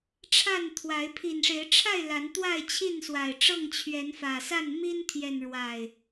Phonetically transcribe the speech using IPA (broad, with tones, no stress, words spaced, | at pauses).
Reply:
ʈ͡ʂʰa˥˨nt̪ʰwa˨˦ɪ̯ pʰi˨˩nʂe˨˦ɪ̯ʈ͡ʂʰa˥˨ɪ̯ la˨˦nt̪wa˥˨ɪ̯t͡ɕʰi˥˨n swa˨˩ɪ̯ʈ͡ʂɤ˥˨ŋt͡ɕʰɥɛ˨˦n fä˨˩sa˥˨n mi˦nt̪ʰjɛ˨nɻwa˨˩ɪ̯